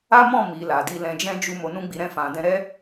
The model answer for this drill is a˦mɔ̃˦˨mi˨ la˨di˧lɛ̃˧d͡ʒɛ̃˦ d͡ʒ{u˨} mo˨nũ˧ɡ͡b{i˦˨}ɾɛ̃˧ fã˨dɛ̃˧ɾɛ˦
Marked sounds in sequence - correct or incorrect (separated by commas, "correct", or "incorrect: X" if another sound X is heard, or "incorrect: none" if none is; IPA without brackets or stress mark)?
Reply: incorrect: u˧, incorrect: i˨